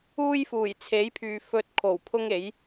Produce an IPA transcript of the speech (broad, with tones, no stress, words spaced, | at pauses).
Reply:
uː˥jfuː˨˩jt͡sʰe˨˥jpʰyː˨ fɵ˧t̚kʰo˨˩w pʰʊ˥ŋe˨˥j